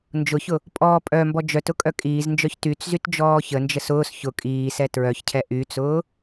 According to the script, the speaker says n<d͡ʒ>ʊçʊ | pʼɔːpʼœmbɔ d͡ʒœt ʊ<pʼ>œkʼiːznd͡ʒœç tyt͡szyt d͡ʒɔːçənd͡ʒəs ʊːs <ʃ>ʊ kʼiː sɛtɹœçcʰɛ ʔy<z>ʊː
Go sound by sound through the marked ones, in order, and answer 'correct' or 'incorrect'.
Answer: correct, incorrect: kʼ, incorrect: ç, incorrect: t͡s

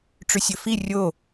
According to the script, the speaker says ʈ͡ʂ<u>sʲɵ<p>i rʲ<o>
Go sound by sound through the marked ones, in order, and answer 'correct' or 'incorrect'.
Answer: incorrect: ʉ, incorrect: f, correct

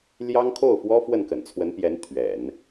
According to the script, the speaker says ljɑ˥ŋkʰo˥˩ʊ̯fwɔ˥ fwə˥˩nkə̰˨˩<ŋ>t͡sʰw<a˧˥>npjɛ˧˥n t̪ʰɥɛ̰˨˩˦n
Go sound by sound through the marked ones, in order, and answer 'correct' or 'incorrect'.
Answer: incorrect: n, incorrect: ə˧˥

